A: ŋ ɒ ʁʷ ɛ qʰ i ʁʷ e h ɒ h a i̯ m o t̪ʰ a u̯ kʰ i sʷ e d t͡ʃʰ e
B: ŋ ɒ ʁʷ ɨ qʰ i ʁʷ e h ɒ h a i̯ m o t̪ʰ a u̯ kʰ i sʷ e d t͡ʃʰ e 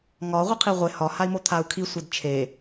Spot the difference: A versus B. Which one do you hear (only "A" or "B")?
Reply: B